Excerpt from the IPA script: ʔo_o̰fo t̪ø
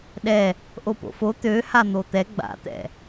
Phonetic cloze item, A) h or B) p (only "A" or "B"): B